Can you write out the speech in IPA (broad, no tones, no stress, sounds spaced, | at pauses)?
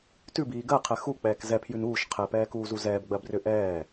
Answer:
t ʉ b iː ɡ ɜ qʰ ɛ x u k͡p ɛː k z ɛ pʰ j ʉ n uː ʃ qʰ ɛ p ɛː k uː z u z ɛː b ɡ͡b ɜ b r ʏ ʔ ɛː